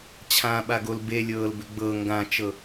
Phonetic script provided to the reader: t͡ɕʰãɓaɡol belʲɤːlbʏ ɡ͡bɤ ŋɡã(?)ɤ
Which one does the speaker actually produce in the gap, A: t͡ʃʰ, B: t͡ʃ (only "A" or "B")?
B